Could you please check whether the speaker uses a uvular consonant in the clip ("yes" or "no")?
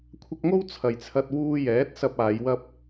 no